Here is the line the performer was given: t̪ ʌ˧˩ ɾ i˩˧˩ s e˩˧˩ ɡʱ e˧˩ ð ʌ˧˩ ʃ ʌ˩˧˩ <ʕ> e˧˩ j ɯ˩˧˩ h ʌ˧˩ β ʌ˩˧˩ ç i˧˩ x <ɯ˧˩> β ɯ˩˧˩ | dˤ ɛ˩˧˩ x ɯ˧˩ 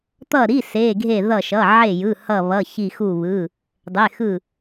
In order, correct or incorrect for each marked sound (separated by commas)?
correct, incorrect